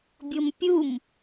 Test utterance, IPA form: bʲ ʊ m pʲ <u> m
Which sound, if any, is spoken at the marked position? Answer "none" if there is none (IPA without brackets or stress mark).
u